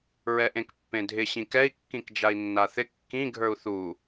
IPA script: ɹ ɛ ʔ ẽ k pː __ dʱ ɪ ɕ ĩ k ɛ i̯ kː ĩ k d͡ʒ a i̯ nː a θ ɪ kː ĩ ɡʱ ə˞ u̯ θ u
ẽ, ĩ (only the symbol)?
ẽ